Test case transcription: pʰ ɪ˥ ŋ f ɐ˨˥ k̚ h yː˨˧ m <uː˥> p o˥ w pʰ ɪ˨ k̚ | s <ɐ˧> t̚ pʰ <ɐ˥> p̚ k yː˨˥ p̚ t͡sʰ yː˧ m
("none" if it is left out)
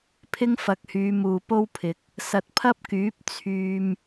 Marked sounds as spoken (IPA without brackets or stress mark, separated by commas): uː˨, ɐ˨, ɐ˥